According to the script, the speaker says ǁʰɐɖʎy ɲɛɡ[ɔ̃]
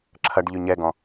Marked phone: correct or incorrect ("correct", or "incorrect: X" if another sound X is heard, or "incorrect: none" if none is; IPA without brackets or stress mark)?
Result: correct